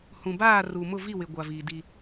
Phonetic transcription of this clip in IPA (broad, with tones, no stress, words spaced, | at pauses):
hũ˨baː˦˨ ru˨mʊ˦˨ vi˦˨wɪ˨ ɡʷa˨viː˨di˦